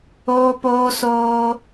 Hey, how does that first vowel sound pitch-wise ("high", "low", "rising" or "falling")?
high